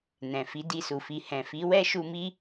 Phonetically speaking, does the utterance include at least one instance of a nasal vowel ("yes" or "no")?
yes